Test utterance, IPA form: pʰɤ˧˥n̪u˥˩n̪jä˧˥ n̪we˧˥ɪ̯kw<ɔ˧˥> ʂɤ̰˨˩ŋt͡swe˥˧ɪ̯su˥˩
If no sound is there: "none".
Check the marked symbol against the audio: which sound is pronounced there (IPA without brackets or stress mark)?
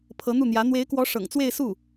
ɔ˧˥